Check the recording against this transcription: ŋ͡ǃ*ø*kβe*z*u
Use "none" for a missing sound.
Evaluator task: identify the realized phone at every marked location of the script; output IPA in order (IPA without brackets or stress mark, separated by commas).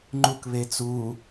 u, t͡s